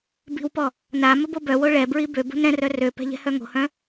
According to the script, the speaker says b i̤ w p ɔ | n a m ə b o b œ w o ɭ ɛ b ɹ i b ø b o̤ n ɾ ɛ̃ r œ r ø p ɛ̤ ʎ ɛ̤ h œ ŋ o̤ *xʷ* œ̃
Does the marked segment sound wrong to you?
yes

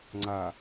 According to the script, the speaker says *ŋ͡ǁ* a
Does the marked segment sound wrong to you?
yes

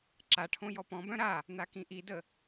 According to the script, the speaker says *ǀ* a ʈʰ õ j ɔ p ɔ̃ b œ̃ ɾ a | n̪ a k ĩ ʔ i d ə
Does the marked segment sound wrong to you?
yes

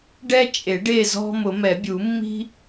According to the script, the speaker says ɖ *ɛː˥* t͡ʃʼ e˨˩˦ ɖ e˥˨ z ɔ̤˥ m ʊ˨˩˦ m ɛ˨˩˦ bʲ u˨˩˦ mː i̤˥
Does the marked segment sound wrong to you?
yes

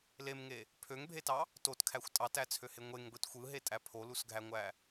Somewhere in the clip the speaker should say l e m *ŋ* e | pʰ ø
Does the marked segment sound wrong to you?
no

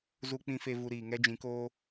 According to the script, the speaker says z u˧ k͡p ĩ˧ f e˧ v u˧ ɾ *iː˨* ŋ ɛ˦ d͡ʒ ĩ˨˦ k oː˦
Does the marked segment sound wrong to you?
no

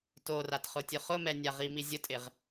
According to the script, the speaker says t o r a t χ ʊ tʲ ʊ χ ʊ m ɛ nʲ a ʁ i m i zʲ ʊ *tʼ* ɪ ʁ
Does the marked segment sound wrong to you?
no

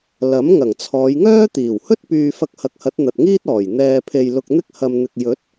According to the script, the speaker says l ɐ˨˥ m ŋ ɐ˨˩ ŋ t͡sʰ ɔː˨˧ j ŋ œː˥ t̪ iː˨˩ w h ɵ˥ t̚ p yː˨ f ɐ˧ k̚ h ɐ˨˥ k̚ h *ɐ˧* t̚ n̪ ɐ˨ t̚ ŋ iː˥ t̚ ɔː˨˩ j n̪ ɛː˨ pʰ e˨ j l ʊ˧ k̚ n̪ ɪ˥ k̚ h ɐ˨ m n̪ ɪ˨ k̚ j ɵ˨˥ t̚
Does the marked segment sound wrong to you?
yes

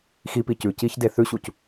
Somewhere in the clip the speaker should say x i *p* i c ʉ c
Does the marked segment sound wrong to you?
no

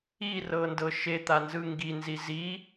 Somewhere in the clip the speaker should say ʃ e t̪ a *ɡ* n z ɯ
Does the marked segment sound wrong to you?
yes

